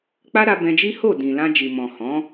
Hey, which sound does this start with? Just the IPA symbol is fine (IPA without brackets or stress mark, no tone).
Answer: k͡p